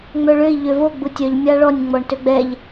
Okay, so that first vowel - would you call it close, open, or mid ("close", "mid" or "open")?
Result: mid